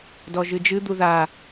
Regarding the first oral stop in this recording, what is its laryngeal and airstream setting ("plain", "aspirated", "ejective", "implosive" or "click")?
plain